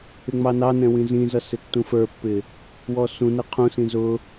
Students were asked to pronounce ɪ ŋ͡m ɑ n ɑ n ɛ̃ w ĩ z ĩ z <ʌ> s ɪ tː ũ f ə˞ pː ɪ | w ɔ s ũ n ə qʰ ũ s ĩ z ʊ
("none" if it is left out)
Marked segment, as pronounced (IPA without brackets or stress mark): ʌ